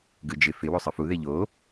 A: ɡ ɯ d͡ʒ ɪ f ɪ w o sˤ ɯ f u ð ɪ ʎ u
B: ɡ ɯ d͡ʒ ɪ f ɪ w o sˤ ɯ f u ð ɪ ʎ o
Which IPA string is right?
B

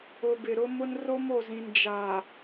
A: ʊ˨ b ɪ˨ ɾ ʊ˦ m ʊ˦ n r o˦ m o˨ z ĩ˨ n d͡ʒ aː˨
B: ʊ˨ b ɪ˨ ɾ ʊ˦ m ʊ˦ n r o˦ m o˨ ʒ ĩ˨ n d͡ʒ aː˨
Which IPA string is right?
A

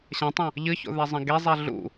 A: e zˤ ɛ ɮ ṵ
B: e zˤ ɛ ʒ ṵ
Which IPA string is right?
A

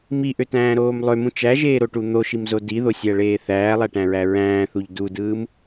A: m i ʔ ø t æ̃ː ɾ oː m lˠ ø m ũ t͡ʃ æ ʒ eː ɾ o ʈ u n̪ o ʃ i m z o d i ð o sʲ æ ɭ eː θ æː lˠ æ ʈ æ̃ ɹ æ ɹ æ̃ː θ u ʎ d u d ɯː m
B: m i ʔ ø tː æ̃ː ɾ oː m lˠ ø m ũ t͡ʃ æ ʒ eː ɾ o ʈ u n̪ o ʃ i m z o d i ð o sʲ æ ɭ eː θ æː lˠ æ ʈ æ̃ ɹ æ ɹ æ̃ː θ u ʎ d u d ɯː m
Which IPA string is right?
A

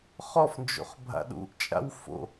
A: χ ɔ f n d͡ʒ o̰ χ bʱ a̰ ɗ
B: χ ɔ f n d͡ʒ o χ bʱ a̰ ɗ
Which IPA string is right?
A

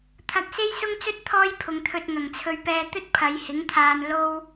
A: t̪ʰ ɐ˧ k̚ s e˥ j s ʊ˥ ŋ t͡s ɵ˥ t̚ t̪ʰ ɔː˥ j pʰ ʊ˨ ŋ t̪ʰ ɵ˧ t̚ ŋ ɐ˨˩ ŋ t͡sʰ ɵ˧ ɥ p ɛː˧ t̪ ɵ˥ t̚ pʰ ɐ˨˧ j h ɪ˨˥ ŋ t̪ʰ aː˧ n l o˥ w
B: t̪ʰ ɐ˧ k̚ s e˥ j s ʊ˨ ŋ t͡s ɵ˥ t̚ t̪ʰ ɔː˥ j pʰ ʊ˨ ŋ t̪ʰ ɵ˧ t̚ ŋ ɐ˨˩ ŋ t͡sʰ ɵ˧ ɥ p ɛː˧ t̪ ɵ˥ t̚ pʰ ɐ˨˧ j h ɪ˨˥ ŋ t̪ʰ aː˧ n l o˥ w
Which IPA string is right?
A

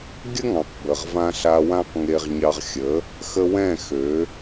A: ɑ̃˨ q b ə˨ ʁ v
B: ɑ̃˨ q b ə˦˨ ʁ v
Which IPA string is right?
A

